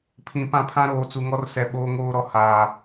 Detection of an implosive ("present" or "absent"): present